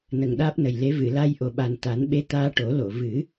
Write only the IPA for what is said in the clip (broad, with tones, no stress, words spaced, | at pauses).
nə˨˩ŋɗaː˦˥p̚nə˨˩jle˧˥ vɨ˨˩˨la˧j ʔo˨˩ɓa˨˩n t̪a˨˩˦nɓe˧˥ t̪aː˧ʈo˨˩˦lo˨˩˨ vɨ˨˩˦